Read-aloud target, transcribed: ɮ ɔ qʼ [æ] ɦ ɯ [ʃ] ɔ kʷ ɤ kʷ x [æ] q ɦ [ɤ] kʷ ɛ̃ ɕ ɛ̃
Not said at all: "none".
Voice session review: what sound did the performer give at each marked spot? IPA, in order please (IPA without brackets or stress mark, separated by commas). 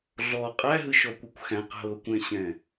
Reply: æ, ʃ, æ̃, ɤ